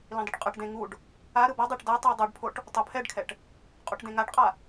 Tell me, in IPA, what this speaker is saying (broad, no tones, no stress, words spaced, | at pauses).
lĩdˤɯʈqʼɯʈdẽ ŋuɖ | a ɾɯbɔdˤeʈ da tˤidˤoɖpʰoʈ | tˤopʰɛɖkʰɛʈ | qʼuʈdẽŋaʈqʼa